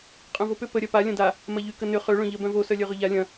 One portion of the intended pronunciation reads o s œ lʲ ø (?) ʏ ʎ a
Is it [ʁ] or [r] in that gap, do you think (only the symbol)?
ʁ